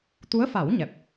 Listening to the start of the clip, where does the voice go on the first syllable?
rising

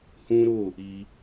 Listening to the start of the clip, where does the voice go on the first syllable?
high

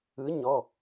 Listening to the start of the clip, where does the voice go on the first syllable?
rising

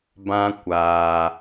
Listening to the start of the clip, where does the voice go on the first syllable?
high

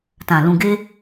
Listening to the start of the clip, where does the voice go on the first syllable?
low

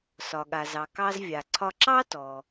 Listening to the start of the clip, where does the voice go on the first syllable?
low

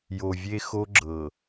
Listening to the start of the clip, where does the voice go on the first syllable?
low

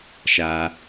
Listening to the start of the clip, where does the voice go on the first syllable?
high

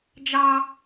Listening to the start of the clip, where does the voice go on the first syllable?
high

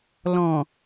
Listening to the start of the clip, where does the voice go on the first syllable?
low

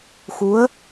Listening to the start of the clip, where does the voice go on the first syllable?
rising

